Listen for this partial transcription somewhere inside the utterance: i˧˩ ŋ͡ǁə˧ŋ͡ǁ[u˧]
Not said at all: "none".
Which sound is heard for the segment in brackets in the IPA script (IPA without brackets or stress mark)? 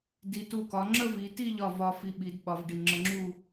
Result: u˥˧